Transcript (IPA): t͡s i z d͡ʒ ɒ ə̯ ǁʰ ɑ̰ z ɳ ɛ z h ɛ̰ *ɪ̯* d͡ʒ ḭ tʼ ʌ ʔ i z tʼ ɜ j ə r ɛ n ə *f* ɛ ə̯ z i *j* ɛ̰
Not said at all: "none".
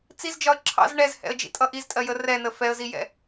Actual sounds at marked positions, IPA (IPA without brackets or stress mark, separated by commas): ə̯, f, j